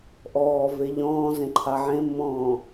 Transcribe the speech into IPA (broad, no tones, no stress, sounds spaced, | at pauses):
ʔ ɔː v e ʎ ɔ̃ː z ẽ ǃʰ a ʕ ẽ mː ɔ̃ː